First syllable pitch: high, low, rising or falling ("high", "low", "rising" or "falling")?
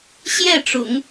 falling